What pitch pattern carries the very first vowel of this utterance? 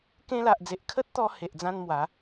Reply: high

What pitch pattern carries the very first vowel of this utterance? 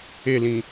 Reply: falling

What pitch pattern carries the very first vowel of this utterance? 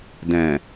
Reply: low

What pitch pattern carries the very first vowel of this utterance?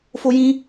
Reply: high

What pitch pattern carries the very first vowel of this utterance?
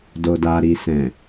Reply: low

